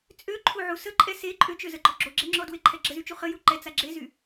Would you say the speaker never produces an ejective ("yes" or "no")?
no